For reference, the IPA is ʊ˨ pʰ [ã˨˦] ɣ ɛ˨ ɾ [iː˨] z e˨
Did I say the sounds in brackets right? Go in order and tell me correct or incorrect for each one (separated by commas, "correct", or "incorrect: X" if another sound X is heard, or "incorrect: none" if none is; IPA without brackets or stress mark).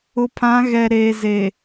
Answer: correct, incorrect: eː˨